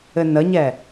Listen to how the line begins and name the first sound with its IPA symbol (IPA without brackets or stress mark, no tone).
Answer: ɘ